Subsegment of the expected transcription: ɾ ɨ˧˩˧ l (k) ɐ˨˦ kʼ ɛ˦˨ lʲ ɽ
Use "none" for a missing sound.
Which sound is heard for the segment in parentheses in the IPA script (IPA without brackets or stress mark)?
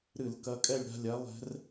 k